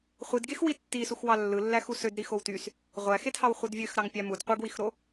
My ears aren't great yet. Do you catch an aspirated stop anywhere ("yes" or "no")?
no